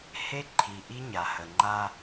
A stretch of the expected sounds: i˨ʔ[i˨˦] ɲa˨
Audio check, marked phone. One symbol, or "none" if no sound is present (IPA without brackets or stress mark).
i˦